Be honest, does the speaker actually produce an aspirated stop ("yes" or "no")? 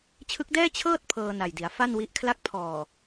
yes